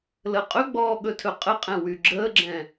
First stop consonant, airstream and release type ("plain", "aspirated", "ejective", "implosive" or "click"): ejective